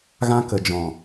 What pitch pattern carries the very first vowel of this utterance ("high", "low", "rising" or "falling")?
high